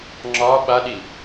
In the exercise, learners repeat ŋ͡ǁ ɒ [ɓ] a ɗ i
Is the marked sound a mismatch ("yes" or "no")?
no